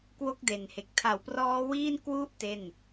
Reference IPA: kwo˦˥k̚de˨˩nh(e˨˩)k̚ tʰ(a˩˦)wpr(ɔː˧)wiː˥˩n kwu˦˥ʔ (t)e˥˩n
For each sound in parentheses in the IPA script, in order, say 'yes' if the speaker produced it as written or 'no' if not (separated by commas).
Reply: yes, yes, no, yes